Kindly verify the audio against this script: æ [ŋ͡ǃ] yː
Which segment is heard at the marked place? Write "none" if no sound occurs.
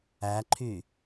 ǃʰ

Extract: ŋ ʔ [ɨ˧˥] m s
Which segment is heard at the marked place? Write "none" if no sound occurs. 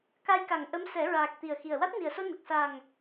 ə˧˥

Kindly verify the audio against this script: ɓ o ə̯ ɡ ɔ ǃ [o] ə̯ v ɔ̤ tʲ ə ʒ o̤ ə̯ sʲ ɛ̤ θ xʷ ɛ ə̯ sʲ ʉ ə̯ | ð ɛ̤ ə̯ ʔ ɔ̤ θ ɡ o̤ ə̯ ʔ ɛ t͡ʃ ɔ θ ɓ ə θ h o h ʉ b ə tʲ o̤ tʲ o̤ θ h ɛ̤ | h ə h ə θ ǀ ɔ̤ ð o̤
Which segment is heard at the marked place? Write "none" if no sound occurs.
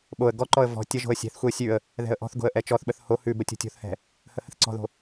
ɔ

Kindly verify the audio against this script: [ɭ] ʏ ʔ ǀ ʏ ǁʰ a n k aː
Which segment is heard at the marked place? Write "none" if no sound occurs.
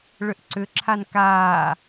ɭ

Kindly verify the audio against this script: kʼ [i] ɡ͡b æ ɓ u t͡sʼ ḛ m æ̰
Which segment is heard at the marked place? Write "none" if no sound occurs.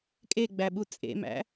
e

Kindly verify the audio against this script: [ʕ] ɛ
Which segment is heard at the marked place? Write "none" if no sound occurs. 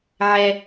ʕ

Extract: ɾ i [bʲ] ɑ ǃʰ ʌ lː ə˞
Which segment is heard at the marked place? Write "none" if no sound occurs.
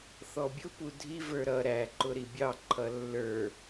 bʲ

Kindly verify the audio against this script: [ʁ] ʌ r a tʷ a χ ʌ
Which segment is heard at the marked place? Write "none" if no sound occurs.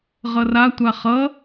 ʁ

